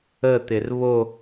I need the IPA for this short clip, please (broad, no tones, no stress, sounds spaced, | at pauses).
ə t̪ ɪ r β o